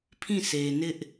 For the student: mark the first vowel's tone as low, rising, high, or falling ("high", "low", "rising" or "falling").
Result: falling